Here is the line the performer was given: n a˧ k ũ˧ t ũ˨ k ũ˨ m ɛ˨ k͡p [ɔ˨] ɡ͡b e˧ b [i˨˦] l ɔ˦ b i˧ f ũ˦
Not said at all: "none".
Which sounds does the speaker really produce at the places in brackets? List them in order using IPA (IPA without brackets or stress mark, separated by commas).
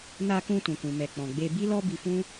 ɔ̃˨, i˦